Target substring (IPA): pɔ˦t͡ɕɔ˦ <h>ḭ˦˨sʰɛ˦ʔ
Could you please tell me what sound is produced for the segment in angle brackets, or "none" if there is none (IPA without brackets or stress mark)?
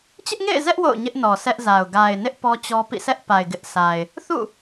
p